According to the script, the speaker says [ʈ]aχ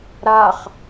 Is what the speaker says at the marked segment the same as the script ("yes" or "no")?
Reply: no